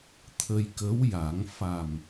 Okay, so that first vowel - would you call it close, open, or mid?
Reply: mid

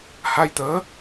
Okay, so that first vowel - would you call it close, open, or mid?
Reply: open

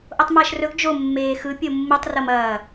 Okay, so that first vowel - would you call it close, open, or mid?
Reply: mid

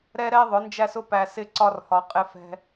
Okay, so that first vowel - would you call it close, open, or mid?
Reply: mid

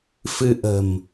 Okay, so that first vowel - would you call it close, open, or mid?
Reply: close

